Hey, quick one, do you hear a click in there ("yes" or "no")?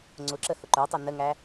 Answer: yes